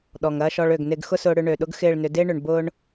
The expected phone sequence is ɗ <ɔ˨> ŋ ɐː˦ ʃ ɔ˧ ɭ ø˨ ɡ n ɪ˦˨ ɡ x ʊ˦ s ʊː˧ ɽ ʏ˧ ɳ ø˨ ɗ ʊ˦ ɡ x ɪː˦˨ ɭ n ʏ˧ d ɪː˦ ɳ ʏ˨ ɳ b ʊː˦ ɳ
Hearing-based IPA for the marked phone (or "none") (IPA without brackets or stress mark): ɔ˨